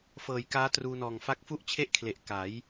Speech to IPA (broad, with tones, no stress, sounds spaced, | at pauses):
f ɤː˨˩ j k aː˦˥ t r uː˧ n ɔː˨˩ ŋ f a˦˥ k̚ f u˥˩ ʔ t͡ɕʰ e˥˩ ʔ kʰ l e˨˩ ʔ k a˩˦ j